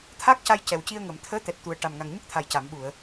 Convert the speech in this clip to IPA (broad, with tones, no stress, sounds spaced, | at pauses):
t̪ʰ aː˦˥ k̚ c a˧ j c ɛ˨˩ w c i˧ ə̯ ŋ əː˨˩˨ m t̪ʰ əː˧˥ t̪ ɛ˨˩ t̚ t̪ u˨˩ ə̯ ʈ a˨˩ m ŋ a˨˩ ŋ ɲ ə˦˥ k̚ t̪ʰ a˨˩ j c a˨˩˨ m ɓ u˨˩˨ ə̯